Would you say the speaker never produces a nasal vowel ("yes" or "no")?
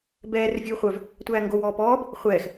yes